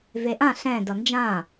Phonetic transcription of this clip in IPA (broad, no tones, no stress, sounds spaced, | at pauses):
v e ʔ ã ɬ ɛ̃ d ʌ n d͡ʒ ã